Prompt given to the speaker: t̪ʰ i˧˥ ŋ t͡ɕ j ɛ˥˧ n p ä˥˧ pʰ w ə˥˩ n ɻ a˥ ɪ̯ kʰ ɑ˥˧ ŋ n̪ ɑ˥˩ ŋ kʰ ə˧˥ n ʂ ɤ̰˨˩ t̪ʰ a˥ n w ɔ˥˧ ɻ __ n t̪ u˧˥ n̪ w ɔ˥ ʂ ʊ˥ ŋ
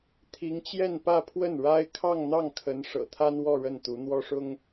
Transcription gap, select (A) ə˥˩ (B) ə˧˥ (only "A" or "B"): A